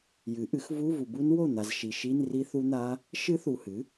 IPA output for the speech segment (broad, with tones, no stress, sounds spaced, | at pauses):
j ɨ˩˥ ʔ ɨ˩˥ x v u˧˥˧ v u˨ b u˦˥ n w o˥˩ n̪ a˨ z ʃ i˨ ʃ i˧˥˧ n r i˦˥ θ u˦˥ n̪ a˦˥ | ʃ ɨ˦˥ θ u˨ h ɨ˩˥